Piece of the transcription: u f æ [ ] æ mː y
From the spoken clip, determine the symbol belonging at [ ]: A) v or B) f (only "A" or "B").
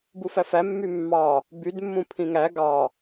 B